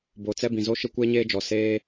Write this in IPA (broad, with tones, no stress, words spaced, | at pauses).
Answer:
bo˨ t͡sɛ˦bĩ˨zo˦ ʃɪ˦kʷeː˦ɲeː˦d͡ʒɔ˨ seː˦